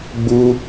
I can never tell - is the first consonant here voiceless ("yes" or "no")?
no